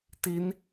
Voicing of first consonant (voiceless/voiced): voiceless